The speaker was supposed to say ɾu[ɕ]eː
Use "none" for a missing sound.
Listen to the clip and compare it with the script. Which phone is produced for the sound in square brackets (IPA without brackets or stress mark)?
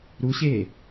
ɕ